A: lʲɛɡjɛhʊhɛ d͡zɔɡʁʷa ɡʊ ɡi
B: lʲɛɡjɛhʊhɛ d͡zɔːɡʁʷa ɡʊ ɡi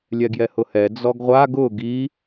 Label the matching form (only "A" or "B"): A